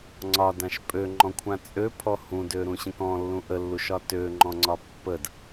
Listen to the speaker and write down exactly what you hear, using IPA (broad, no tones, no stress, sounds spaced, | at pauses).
ŋ͡ǀ ɒ d ã ʃ pʼ ø ŋ͡ǃ ɔ̃ kʷʰ ã t͡sʼ ø pʰ ɔ h ũ d ø ɾ ũ ɕ ə̃ k ɔ̃ lː ũ ʔ ə lː u ʃ ɒ t ø ŋ͡ǃ ɔ̃ ŋ͡ǀ ɒ pː ə d